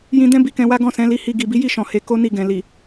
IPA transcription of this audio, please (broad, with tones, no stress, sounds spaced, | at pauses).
j ĩ˧ d ɛ̃˦ b i˧ k ɛ̃˧ w a˦ ɡ ɔ̃˦˨ s ɛ̃˨˦ l i˧ h i˧ ɡ i˨ b i˨˦ j i˦˨ ʃ ɔ̃˨ h e˧ k o˦ n i˧ ɡ ɛ̃˨ l i˨